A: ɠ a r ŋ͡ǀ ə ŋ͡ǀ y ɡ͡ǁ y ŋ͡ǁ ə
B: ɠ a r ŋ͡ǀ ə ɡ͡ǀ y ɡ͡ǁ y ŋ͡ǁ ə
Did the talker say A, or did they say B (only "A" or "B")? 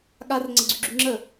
B